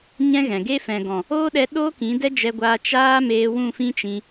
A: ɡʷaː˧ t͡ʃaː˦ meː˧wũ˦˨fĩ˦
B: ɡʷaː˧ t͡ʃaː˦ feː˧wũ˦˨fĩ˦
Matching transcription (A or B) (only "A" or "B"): A